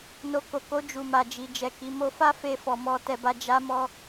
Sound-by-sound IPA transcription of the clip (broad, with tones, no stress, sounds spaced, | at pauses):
n o˧ k o˨ k o˧ d͡ʒ u˨ m a˨ d͡ʒ i˨ d͡ʒ ɛ˨ k i˨˦ m o˧ f a˦ f e˧ f ɔ˨ m ɔ˧ t ɛ˧ b a˧ d͡ʒ a˧ m ɔ˧